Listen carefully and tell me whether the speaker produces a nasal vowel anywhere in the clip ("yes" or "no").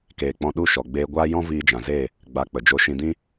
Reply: yes